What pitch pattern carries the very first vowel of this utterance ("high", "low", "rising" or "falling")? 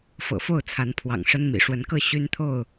low